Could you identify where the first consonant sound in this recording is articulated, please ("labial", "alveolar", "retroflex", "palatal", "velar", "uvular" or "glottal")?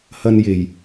glottal